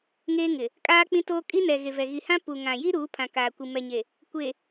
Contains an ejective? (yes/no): yes